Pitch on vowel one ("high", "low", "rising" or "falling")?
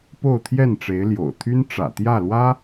falling